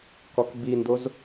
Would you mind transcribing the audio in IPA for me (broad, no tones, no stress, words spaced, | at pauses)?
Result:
kɔkbindoz